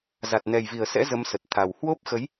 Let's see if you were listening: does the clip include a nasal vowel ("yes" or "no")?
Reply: no